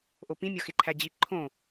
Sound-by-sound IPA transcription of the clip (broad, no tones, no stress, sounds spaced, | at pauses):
ʔ o p ĩ mʲ ɒ x e ǃʰ æ d͡ʑ i ǃʰ õ